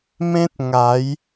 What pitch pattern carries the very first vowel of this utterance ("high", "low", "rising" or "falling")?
high